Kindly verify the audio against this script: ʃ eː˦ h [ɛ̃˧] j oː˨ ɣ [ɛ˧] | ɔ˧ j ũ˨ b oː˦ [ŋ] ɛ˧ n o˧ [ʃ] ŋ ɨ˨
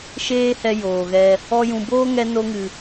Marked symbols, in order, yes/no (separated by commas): no, yes, yes, no